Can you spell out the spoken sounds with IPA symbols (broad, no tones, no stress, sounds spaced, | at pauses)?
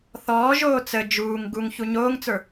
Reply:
θ ɔː ʒ oː t͡s ə d͡ʒ uː ŋ ɡ u ŋ ç u ɲ oː ŋ t͡s ə˞